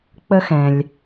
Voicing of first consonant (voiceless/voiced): voiceless